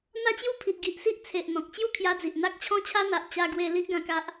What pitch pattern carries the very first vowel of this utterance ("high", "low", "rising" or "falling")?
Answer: high